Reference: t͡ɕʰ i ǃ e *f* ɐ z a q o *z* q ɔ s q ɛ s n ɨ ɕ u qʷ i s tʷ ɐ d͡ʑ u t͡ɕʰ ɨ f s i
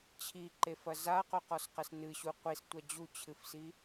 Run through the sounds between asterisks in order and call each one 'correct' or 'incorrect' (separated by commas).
correct, incorrect